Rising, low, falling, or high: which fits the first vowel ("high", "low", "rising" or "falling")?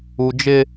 low